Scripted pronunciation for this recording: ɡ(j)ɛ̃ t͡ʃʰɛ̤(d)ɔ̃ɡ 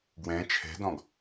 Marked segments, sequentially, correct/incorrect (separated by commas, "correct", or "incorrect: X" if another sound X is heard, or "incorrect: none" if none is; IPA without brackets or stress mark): incorrect: w, correct